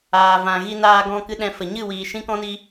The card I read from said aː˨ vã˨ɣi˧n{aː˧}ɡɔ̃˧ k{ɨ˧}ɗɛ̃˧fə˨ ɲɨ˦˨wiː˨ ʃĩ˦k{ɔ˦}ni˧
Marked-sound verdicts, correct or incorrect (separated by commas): correct, incorrect, incorrect